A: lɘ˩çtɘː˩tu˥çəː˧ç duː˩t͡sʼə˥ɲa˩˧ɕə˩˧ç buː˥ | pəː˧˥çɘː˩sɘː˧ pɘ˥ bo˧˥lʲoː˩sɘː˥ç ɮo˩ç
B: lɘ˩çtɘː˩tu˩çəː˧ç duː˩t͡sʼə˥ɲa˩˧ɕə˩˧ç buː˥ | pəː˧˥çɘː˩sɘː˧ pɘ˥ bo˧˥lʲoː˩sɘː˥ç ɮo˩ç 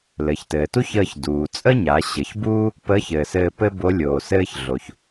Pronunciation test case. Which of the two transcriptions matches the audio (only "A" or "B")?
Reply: A